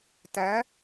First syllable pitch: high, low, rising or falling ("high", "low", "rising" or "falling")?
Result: rising